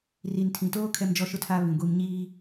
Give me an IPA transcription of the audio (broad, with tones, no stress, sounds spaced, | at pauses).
r i˨ n tʰ ĩ˨ t oː˦ kʰ ɛ˦ m d͡ʒ ɔ˦ ʃ ʊ˦ tʰ aː˦ β ĩ˨ ɡʷ i˦ m ɲ iː˦